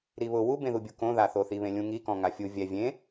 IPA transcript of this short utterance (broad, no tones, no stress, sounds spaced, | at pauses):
ɾ i β ʊ w u b ẽ ð u bʲ u k õ ð a θ o θ i β ẽ lʲ ũ ŋ i k ɔ̃ ŋ a fʲ u vʲ ɛ vʲ ẽ